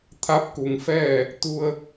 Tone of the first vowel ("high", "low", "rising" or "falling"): rising